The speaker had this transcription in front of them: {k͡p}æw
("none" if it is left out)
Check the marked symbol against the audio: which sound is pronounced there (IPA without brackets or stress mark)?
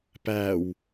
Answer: p